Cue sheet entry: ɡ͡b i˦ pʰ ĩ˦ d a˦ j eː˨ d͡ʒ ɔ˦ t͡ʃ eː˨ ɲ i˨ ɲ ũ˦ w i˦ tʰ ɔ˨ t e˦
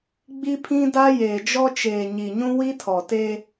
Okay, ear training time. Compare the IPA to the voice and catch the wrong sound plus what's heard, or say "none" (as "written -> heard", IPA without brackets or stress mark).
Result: none